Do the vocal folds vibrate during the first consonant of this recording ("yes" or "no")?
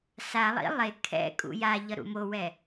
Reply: no